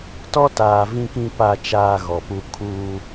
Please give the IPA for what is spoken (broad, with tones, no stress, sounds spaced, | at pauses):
t ɔ˦ t aː˨ v ĩ˨ k ĩ˨ p a˨ t͡ʃ aː˨ ɣ ɔ˨ p u˦ kʰ uː˦